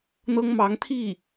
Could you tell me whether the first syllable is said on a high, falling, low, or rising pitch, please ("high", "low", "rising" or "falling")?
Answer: high